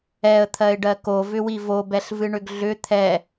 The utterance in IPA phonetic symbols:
ɛ ə̯ t̪ʰ ɜ ɪ̯ ɖ ɜ k o v ʏ w i v o b ɛ ɬ v ɨ ɳ ʏ ɡ ɮ ʏ t̪ʰ ɛ

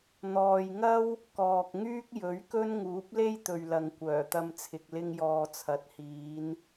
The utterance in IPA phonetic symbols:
n̪ ɔː˨ j ŋ ɐ˥ w | k ɔː˨ k̚ ŋ yː˥ k̚ j ɵ˨˥ ɥ k ɵ˥ n ŋ uː˨˥ p̚ l e˥ j t̪ ɵ˨ ɥ l ɐ˨ ŋ kʷ œː˨˩ t̪ ɐ˧ m t͡sʰ ɪ˨ k̚ l ɪ˧ ŋ j ɔː˨ t͡sʰ ɐ˨˥ t̚ h iː˨˧ n

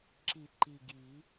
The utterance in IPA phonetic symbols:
ǁ i˨˩˦ ǃ i˨˩ ɡ i˨˩˦

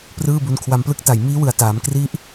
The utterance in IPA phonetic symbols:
p r ɯː˥˩ b u˧ n kʰ w a˧ m p l ɯ˦˥ k̚ t a˨˩ j m iː˦˥ w ɯ˨˩ a̯ t aː˩˦ m k r i˦˥ ʔ

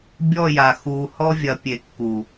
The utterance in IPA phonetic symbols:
bʲ ɔ˦˨ j a˨ x uː˨ h ɔ˧ vʲ ɐ˨ pʲ e˨ kː u˨

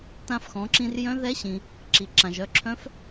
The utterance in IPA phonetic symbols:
t ã˧ f x ɔ̃˩˧ ǁ ĩ˧ r j œ̃˧˥ ð ɛ˧˥ ɕ ĩ˩ | ǁ i˩ ǁ ã˩ ʒ œ˩˧ ǁʰ œ̃˧˥ f

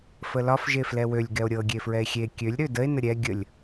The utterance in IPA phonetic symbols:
f ə l ɒ f ʒ e f l ɛ w ø lʲ ɡ ɛ o̯ ɾʲ ɤ ɡʲ e f ɹ ɛ e̯ xʲ e kʲ ø lʲ ɾ ø d ə e̯ n ə ɾʲ ɛ ɡʲ ə lʲ

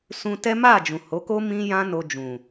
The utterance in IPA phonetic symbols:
s ũ˧ t ɛ˦ m a˦˨ d͡ʒ ũ˨ h o˨˦ k o˦ m ĩ˦ j ã˦ n o˧ d͡ʒ ũ˨

